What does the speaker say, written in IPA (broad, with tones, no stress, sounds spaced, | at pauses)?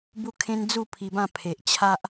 b u˦ kʰ ẽ˦ n d͡z u˥˧ pʰ i˧ b ã˥˧ pʰ e˨ ʔ t͡ɕʰ a˦ ʔ